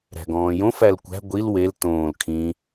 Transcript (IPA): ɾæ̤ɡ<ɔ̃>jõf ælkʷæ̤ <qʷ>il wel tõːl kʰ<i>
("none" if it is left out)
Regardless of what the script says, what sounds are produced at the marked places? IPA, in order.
ɔ̃ː, ɡʷ, ĩ

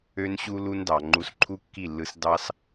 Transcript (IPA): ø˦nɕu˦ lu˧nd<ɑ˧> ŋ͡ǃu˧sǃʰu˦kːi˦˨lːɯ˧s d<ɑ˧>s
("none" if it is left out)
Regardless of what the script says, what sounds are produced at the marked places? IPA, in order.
ɑ˨, ɑ˦

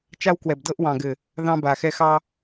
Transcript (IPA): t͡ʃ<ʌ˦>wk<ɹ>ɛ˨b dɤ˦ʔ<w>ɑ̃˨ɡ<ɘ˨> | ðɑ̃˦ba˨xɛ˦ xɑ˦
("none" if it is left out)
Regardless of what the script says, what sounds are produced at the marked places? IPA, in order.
a˦, w, w, ɘ˨

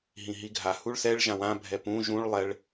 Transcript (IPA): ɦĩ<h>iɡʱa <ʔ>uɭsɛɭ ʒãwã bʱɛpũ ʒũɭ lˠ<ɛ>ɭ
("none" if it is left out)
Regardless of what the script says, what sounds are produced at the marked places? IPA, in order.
ɦ, h, ɛ

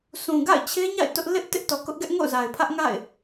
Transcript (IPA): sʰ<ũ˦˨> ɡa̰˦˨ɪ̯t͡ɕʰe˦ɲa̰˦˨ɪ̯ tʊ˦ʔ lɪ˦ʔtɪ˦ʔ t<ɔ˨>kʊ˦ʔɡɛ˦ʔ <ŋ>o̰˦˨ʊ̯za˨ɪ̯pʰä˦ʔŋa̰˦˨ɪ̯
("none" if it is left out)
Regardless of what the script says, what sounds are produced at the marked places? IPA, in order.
ũ˨, ɔ˨, ŋ

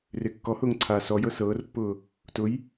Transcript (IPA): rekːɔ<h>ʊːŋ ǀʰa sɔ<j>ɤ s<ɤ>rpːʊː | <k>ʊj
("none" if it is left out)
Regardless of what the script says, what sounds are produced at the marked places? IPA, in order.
h, j, ɤː, t

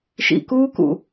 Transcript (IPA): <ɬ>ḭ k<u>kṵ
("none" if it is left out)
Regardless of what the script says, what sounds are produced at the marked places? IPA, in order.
ʃ, uː

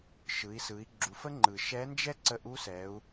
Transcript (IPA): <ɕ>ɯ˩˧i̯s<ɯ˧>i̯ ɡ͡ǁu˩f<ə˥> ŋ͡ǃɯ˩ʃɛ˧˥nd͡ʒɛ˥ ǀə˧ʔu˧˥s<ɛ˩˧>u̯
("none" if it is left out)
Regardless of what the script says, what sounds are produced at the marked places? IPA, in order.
ʃ, ɯ˩˧, ə˥, ɛ˩˧

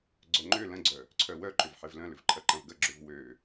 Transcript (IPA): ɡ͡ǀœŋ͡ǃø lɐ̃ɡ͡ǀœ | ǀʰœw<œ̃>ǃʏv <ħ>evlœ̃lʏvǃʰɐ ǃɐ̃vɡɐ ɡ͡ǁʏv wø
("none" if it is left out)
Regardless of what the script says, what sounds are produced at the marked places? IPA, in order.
œ, ħ

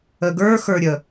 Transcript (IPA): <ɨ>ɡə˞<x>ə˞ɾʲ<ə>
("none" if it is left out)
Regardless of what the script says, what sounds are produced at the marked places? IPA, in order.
ə, x, ə

